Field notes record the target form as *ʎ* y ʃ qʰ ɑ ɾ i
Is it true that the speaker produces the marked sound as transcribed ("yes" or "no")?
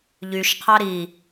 yes